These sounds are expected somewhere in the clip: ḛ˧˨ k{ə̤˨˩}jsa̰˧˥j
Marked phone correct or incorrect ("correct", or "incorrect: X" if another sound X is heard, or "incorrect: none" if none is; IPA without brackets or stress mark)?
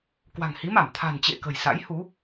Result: correct